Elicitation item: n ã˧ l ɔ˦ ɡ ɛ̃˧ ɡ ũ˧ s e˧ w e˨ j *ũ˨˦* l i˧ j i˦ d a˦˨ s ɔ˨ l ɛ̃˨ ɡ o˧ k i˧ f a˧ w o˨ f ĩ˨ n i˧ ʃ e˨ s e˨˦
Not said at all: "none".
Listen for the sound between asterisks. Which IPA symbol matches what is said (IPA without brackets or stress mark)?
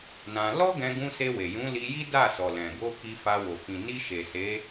ũ˨˦